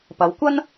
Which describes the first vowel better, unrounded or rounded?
unrounded